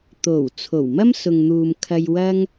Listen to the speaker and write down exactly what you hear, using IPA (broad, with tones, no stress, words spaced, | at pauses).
t̪o˨˩w t͡sʰo˨˩wmɐ˥m sʊ˨ŋn̪uː˨m kʰɐ˧jwɐ˥ŋ